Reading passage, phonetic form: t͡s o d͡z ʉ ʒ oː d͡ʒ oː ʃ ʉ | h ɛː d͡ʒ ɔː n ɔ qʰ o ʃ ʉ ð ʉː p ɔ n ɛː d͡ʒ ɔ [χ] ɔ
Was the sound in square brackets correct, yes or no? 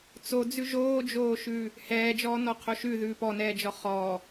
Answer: yes